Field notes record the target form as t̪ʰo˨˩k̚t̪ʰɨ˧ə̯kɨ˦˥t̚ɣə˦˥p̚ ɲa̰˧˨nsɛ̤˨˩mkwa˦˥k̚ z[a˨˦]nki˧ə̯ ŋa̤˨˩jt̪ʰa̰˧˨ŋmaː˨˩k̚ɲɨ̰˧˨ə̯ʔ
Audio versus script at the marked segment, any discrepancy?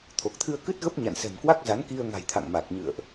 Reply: no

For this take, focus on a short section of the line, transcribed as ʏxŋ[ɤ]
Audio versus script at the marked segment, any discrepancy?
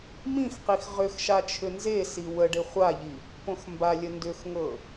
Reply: no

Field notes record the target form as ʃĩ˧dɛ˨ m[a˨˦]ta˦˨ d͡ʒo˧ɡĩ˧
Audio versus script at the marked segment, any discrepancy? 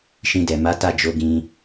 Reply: no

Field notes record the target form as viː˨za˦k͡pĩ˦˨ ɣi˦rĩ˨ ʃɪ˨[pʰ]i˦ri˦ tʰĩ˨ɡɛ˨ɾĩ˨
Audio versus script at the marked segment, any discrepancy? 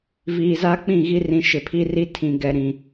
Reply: no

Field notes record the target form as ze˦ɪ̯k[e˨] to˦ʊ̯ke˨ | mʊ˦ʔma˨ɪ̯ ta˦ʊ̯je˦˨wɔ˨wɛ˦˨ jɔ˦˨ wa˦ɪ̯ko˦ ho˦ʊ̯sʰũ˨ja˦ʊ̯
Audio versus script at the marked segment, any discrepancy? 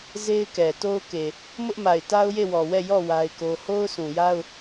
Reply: yes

